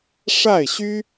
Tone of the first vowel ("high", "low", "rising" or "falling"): falling